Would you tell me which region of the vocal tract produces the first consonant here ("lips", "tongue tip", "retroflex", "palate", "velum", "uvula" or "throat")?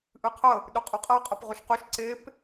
throat